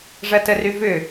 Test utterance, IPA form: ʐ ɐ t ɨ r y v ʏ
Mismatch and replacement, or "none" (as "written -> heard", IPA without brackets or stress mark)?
ɨ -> ə